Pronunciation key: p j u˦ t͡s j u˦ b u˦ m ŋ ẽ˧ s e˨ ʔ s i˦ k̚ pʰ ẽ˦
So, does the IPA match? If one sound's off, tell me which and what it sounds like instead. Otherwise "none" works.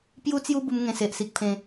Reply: none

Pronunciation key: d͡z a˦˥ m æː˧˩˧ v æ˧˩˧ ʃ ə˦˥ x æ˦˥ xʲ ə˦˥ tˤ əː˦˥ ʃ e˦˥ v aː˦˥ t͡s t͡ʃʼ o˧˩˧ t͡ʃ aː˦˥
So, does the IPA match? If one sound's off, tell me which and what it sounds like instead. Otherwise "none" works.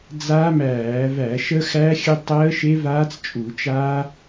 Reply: o˧˩˧ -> u˧˩˧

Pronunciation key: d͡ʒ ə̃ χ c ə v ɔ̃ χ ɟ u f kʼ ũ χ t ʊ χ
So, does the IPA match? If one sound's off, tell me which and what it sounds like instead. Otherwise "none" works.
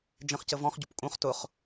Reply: f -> p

